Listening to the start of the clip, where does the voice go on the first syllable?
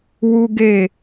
high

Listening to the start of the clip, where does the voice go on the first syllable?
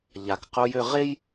low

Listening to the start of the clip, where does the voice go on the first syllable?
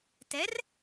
rising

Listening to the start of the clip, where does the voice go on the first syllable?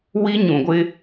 high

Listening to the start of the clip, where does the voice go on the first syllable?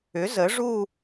rising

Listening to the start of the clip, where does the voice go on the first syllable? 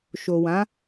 low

